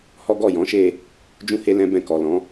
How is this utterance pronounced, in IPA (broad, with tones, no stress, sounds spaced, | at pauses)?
h ɔ˦ ɡ ɔ˦˨ j ɔ̃˨˦ ʃ e˦˨ | d͡ʒ ũ˦ h e˦ l ɛ̃˦ b ɛ̃˧ k ɔ˨ l ɔ̃˨˦